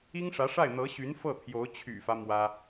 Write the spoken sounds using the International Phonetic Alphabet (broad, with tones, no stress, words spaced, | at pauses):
i˥ŋʂä˧˥ʂa˥˩ɪ̯ n̪ɤ˧˥ɕy˧˥n fɤ˥˩t̪ʰjo˧˥ʊ̯ t͡ɕʰy̰˨˩fä˦ mwä˥